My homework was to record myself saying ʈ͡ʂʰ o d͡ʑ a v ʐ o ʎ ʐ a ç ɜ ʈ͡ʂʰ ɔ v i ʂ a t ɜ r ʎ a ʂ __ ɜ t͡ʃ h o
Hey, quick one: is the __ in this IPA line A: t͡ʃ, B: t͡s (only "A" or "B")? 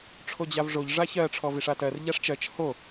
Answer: A